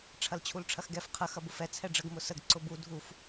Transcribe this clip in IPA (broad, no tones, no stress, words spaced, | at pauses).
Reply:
ʈ͡ʂʰɐlt͡ɕʰulʈ͡ʂʰɐxɡɛf qʰə xɐbʊfɛ t͡sʰɛɖ͡ʐəɡ mʊsəɡ ǀʊbu dʱuf